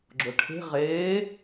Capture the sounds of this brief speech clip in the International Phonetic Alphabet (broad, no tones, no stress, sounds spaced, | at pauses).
ɡ͡ǁ ʊ ʈʰ e̤ ʁ eː